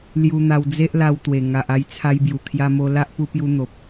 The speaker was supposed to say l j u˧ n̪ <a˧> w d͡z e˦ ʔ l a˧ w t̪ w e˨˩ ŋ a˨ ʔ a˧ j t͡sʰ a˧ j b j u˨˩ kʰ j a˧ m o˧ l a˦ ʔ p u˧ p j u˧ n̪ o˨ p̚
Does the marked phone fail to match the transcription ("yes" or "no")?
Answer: no